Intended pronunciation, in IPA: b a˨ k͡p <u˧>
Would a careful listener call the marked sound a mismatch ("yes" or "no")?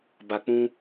yes